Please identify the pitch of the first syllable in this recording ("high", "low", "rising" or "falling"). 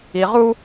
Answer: low